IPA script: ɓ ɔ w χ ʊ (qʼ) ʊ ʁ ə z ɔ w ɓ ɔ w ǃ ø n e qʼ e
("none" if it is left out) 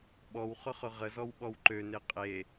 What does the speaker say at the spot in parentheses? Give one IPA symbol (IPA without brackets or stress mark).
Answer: χ